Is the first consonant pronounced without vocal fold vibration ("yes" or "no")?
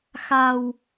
yes